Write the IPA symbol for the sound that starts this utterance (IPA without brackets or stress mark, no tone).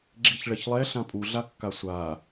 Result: ɡ͡ǁ